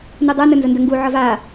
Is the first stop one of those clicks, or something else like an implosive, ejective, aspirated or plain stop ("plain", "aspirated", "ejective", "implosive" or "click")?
plain